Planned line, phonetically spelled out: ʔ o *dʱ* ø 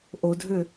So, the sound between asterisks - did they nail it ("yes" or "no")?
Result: yes